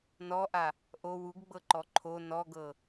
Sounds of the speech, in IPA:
n ɔ ʔ a | ʔ o w u ɡ ɡ͡b ɤ ǃ ɔ ǃʰ o n ɔ ɡ ɤ

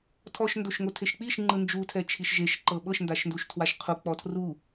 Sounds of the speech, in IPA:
tʰ ɔ ʃ n d o ʃ ŋ o tʰ e ʃ k͡p i ʃ ŋ͡ǃ ɯ n d͡ʒ u tʰ ɛ t͡ʃʰ i ʃ ʒ e ʃ ǃ ɤ ɓ ɤ ʃ n d a ʃ n d u ʃ tʰ w a ʃ qʰ u k͡p ɔ tʰ r u

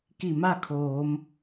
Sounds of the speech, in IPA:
k i˧˩ m a˥˨ kʰ oː˩˧ m

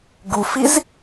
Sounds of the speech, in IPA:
ɡ u f i z

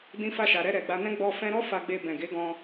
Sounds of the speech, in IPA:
d ĩ˧ f a˧ ʃ a˨ ɾ ɛ˧ ɾ ɛ˨ ɡ͡b a˧ n ɛ̃˦ ɡ͡b ɔ˧ f ɛ̃˧ ɾ ɔ˦ f a˧ ɡ͡b e˧ b ɛ̃˨ ɡ e˨˦ ɡ ɔ̃˧

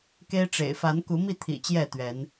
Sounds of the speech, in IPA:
k e˦ ɪ̯ ʈ͡ʂ ḛ˨˩ ɪ̯ f a˨˦ n k u˨˦ m i˥˨ t̪ʰ ḭ˨˩ t͡ɕ j ɛ˥˨ t̪ ɥ ɛ˨˦ n

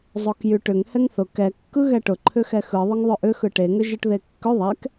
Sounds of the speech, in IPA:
zˤ o k j y ʈ ʏ ŋ h ɛ ŋ θ ʊ k ɛ kː ɯ ɣ ɛ ʈ ʊ ǃʰ ʏ x ɛ x ɯ ðˤ ʏ ŋ ðˤ ʏ ʔ ʏ x ɯ ʈ e ŋ ʏ ʒ ɯ ʈ ð e kː ʏ ðˤ ɛ k

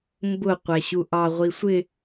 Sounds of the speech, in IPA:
m b ʊ qʷ æ ɕ u ʔ ɑ ʁʷ i sʷ ɪ

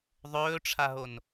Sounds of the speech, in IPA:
ðˤ ɵː ʈ͡ʂʰ a ɦ o n

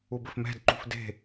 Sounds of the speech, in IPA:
u b ɘ f m ɛ̤ d ǃ ṳ f d e̤

